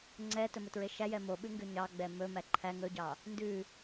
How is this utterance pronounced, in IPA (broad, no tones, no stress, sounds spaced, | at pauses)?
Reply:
ŋ͡ǀ ɛ t ɵ m ɵ t ɹ e ʃ æ j ɛ m o ɓ ʉ ŋ ɡ ʉ ɲ ɑ ɡ͡b ɛ m ɵ m æ ǃʰ æ ŋ ɵ ɟ ɑ | n d ʉ